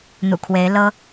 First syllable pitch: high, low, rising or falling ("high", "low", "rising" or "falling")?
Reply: low